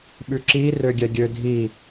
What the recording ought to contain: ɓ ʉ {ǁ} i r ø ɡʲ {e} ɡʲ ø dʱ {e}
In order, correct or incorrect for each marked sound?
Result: correct, incorrect, incorrect

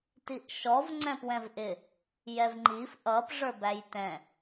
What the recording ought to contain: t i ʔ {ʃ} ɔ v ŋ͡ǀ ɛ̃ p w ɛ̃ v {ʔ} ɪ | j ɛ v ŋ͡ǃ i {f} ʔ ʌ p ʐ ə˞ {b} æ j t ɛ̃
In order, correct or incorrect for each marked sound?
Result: correct, correct, correct, correct

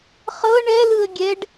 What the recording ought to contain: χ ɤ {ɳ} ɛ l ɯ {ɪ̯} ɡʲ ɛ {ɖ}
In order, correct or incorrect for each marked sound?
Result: correct, incorrect, correct

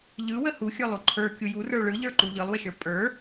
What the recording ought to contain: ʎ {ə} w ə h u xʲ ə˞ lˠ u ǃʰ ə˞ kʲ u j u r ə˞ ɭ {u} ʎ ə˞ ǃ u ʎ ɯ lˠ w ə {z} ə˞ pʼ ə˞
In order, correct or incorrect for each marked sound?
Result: incorrect, incorrect, incorrect

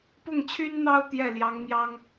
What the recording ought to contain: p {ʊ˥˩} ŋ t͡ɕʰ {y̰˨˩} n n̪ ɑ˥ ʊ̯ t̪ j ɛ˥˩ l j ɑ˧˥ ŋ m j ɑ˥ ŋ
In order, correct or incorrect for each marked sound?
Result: correct, incorrect

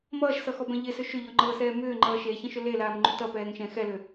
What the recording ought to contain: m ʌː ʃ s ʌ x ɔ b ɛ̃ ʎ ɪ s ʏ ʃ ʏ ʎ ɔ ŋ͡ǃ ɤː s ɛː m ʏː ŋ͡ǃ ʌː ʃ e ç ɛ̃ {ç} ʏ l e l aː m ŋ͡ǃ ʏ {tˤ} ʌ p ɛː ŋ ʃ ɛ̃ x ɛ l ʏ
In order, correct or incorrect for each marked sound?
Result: incorrect, incorrect

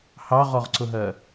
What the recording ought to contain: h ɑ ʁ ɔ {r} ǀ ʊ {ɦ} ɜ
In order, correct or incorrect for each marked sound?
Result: incorrect, correct

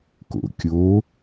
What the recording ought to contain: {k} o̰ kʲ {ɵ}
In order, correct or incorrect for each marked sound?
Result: correct, incorrect

